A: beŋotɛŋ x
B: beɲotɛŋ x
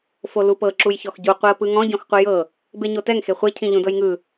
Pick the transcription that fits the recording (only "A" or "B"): B